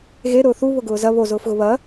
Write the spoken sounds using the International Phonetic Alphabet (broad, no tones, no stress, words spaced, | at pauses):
ɣe ɾʊːθu βʊɡʊːzɐ βozʊːfɣʊ βɐ